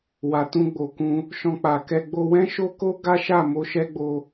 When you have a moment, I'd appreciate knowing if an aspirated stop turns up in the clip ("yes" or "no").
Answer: no